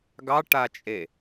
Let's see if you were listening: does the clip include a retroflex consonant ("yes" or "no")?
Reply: yes